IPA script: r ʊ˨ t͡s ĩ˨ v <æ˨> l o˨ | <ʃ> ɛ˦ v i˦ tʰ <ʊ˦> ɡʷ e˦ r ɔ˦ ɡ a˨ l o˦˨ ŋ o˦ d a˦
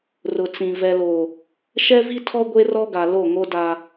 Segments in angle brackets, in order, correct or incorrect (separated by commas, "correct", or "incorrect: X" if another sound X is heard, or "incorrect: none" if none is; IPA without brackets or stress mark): incorrect: ɛ˨, correct, incorrect: ɔ˦